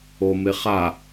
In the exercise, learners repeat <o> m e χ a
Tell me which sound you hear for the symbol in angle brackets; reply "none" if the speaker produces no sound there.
o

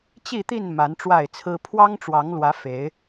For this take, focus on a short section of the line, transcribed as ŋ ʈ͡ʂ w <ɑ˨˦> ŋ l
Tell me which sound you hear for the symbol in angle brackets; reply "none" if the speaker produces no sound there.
ɑ˨˦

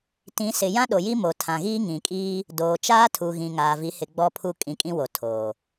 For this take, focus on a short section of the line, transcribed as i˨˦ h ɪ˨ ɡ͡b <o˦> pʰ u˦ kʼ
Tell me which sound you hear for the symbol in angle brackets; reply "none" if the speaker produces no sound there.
ɔ˦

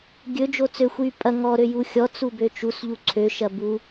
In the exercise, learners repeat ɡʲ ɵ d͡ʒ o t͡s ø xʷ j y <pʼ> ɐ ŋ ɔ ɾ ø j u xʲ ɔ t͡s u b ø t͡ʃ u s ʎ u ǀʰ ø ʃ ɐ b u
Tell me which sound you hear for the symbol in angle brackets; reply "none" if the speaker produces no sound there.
pʼ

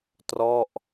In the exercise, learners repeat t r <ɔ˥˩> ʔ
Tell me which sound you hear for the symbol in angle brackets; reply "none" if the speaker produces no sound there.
ɔ˥˩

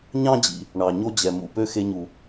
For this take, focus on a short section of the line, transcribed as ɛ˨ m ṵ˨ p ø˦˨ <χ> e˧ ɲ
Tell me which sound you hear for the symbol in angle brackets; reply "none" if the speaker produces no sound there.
x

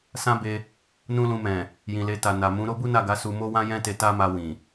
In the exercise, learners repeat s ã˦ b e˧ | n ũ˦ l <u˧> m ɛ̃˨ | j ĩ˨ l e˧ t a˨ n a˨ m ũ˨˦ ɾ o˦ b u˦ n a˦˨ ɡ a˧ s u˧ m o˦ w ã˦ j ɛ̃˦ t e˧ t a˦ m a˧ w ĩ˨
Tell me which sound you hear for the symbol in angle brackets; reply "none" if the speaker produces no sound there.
ũ˧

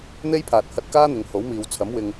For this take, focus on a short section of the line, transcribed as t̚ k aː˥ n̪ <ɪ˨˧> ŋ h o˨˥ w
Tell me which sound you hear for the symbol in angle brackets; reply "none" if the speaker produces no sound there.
ɪ˨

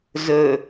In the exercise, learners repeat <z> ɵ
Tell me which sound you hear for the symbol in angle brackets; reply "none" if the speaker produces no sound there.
z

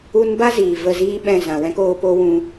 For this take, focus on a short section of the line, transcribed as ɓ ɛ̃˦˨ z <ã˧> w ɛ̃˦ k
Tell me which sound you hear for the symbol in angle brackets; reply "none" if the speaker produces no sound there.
ã˨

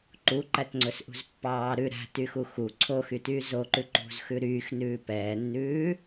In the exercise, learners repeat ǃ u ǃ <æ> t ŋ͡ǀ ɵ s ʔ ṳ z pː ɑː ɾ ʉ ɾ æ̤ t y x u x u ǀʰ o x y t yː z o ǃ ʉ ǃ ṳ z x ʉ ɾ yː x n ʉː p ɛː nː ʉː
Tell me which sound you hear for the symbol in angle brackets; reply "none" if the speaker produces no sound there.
æ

